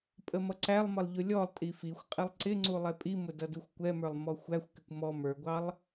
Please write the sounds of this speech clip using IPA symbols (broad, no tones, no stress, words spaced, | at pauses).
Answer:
pʼəmʌǀælˠmʌlˠ ʎʊlʲɔlˠtʼi fixʷqʼɪlˠ ǀɪŋ͡ǀu lˠɛpʼimʊ dʌduxʷkʷɛmə˞lˠ mɔxʷæxʷkɪkʷ mɔ mə˞ɡʷɑlˠ